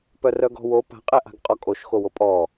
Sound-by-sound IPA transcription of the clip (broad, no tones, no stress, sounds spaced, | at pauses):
p œ r œ ɡ ɔ̤ w o p a̤ qʼ ɛ ʔ a̤ ɡ qʼ ɔ kʼ o ʃ x o w o pʼ ɔ